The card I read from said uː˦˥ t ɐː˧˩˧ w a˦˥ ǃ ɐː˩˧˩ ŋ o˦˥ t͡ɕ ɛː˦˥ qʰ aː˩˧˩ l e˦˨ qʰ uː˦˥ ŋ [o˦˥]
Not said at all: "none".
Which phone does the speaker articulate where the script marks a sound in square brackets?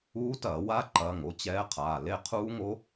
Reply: o˦˥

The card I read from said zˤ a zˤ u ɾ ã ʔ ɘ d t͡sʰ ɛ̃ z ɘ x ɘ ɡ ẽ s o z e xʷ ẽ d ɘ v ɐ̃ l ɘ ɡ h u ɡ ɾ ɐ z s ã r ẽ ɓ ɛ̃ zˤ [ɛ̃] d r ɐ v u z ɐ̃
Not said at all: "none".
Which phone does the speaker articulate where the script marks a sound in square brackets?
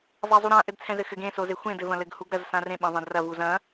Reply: ẽ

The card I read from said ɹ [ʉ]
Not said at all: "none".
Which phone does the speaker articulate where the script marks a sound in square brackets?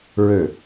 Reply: ø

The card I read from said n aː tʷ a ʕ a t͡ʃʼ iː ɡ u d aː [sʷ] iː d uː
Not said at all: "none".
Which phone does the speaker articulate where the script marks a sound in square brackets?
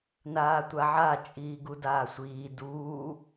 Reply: sʷ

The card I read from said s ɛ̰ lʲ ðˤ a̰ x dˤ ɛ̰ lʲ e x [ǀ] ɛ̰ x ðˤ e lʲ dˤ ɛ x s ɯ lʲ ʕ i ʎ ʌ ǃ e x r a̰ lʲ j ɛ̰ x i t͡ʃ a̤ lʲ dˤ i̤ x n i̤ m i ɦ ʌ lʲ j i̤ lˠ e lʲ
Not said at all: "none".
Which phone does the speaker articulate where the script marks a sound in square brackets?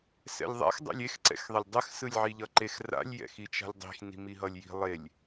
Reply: ǀ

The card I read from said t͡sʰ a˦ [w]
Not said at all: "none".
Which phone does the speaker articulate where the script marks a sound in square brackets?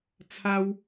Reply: w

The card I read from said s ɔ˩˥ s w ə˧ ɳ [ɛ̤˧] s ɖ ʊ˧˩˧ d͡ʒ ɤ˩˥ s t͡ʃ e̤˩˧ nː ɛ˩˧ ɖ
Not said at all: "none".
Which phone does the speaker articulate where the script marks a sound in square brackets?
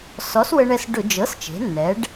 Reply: ɛ˧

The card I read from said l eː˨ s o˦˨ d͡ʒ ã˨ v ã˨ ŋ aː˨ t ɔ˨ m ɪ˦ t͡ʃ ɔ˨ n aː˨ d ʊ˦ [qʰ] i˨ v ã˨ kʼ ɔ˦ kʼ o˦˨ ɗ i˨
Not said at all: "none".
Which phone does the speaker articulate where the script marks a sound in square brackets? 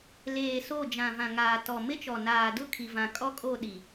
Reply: kʰ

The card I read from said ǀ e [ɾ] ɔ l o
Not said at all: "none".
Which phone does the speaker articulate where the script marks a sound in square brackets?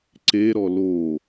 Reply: ɾ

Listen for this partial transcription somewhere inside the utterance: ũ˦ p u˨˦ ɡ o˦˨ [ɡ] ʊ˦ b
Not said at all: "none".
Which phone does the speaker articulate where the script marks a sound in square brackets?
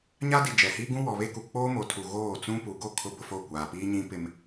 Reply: kʰ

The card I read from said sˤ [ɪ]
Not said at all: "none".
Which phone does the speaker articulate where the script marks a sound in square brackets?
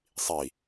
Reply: i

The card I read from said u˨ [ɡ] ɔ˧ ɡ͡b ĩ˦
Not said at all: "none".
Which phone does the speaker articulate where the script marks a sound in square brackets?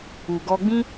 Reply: ɡ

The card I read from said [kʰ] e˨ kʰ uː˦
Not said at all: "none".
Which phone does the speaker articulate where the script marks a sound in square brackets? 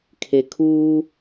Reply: kʰ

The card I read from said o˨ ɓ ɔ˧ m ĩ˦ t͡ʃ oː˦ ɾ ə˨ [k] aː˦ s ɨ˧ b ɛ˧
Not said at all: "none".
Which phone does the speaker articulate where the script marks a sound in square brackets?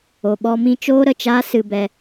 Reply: t͡ʃ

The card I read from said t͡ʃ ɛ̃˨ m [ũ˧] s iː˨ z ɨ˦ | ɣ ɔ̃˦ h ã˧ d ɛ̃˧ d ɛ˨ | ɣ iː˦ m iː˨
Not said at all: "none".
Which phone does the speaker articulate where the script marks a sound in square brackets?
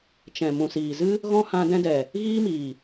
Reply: ũ˨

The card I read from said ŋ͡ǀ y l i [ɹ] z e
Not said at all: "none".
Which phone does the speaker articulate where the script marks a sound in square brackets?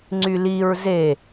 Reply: ɹ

